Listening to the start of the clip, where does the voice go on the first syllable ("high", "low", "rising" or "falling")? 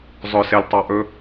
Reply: low